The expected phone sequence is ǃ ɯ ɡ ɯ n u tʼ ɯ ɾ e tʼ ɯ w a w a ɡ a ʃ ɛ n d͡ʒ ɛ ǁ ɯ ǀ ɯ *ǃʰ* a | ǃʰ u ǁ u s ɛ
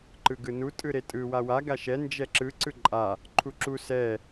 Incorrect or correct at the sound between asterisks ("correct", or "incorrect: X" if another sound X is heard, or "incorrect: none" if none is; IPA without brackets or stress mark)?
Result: incorrect: ǃʼ